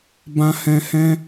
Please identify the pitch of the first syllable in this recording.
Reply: high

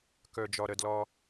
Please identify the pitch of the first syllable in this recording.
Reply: low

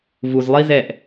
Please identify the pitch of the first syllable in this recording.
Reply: low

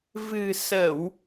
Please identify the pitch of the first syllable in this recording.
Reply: low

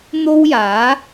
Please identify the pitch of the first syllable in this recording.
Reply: high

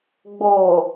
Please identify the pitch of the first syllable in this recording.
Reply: low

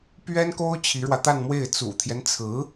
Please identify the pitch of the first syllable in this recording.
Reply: high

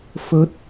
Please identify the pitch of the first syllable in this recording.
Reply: rising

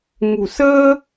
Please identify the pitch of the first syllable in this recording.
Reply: low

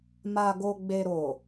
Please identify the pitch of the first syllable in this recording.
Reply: low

